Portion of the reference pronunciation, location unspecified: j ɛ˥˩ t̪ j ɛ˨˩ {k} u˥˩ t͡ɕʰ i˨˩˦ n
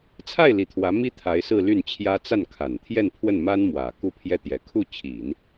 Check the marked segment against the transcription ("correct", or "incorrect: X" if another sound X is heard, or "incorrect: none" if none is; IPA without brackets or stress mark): incorrect: kʰ